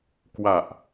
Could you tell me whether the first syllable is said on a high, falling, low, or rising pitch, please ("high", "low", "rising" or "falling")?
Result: low